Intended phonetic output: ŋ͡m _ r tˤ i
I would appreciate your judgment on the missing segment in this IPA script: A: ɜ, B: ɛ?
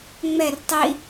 B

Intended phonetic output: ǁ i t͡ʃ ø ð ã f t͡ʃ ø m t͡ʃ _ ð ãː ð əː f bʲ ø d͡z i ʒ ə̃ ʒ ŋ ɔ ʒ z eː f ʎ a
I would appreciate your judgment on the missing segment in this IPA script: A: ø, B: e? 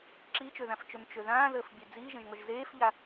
A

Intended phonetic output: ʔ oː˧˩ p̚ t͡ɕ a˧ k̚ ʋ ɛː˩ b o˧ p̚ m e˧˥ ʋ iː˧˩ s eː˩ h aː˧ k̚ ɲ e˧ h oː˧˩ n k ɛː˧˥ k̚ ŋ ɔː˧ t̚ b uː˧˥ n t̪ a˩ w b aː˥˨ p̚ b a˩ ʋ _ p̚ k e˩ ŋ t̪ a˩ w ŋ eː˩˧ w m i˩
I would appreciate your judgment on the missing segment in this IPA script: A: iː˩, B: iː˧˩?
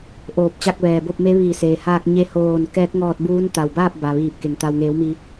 B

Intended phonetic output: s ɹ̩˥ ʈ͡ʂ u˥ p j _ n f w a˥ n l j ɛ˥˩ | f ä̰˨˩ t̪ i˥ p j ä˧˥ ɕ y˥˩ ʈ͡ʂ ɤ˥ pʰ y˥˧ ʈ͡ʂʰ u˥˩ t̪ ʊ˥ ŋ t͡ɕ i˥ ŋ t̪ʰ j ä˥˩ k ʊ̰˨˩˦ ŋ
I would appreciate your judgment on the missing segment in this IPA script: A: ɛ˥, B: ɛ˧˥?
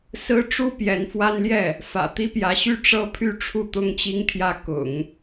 B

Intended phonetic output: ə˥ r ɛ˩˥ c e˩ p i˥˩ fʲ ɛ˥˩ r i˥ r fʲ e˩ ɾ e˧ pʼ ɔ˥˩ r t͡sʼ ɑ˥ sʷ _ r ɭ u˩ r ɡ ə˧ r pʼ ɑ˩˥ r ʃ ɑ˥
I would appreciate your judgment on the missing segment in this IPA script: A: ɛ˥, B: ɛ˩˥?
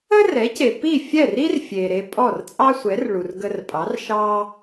B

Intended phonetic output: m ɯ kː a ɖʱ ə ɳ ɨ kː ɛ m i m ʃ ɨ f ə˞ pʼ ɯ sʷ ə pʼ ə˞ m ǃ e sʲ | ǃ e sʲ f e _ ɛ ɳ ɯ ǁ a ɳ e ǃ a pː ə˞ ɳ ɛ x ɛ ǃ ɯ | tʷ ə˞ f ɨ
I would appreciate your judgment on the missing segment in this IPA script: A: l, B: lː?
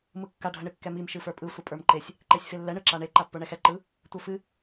B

